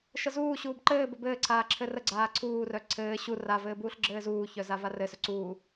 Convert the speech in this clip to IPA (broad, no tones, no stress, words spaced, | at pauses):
ʃəzuːɕuːb ǃɘːbə bɘːǀʰaː ǁʰɘrəɡ͡ǀaː ǀʰuːrœ ǀʰɘː ɕu ravɘː buːɬɡ͡ǁɘːzuːçœ zavarɘsœ ǀuː